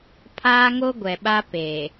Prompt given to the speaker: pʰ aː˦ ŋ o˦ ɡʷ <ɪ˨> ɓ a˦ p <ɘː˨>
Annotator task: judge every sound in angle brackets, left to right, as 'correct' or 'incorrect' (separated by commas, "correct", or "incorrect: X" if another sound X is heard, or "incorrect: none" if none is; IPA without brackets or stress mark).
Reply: incorrect: ɛ˨, incorrect: eː˨